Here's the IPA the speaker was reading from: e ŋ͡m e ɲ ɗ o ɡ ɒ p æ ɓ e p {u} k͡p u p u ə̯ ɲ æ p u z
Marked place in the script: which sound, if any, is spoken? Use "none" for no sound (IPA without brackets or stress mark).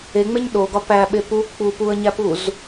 u